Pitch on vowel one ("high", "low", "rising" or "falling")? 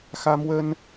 high